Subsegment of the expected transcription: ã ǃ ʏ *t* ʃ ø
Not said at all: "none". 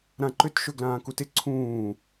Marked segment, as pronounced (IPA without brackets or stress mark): t